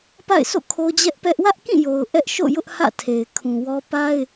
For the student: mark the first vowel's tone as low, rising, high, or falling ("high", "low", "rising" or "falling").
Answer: falling